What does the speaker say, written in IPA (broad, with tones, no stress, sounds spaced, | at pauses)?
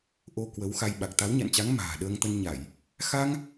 ʔ o˧ k w ə˨˦ w x a˧ j ɓ a˨˩ k̚ t̪ a˨˦ w ɲ a̰˧˨ n t͡ɕ a˨˦ ŋ m a̤ː˨˩ ɗ əː˧ ŋ t̪ ə˧ n ɲ a˧˩˨ j | x a˧ ŋ